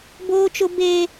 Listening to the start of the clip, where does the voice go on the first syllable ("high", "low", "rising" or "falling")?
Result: high